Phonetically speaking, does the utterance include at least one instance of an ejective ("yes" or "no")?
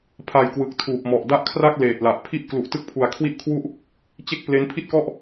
no